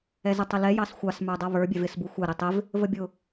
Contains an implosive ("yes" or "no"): no